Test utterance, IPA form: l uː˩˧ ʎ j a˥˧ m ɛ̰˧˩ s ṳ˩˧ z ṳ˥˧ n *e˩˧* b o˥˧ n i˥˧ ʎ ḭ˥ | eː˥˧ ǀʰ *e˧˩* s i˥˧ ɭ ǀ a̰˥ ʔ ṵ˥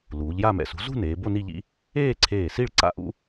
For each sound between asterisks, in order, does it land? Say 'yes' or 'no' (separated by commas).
no, no